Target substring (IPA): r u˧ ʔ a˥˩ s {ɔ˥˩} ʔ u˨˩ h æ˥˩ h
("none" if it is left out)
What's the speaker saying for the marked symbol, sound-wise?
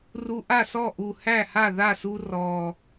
ɔ˥˩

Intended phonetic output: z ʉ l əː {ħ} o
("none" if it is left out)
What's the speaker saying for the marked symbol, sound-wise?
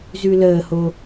h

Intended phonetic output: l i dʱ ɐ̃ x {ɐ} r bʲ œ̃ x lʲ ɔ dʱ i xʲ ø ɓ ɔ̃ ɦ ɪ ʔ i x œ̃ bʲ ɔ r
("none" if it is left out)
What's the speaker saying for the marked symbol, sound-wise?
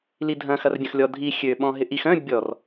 ɐ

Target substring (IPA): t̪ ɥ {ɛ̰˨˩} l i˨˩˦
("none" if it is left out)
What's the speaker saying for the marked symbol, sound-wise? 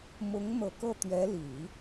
ɛ˧˥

